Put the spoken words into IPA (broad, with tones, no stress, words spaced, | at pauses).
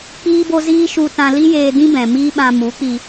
k͡piː˦bo˦ziː˦ ʃu˧tã˧li˦jeː˧ dĩ˦bɛ̃˨ mi˦ɓã˧ mu˨˦k͡pi˧